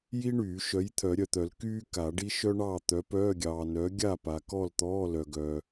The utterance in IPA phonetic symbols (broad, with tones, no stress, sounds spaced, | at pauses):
j i˥ ɳ yː˨˩˦ ʃ œ˨˥ j t̪ʰ œ˨˩˦ ɾʲ œ˨ t̪ œ˨˩˦ l k yː˥ k a˨˩˦ ɖ i˥ ʃ œ˥ ɳ ɑː˥˨ t̪ œ˨˥ p œː˧˥˧ ɡʲ ɑː˨ n œ˨˥ ɡʲ a˥˨ p a˨ k ɔ˥˨ l t̪ ɔː˧˥˧ l œ˨ ɡ œː˨